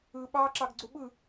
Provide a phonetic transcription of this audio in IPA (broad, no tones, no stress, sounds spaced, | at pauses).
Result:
ɯ ɓ ɑ ǁ ɑ ɡ ɡ͡ǀ u ɓ ɯ